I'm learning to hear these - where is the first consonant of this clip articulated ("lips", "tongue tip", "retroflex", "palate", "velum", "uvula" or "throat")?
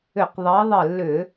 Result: uvula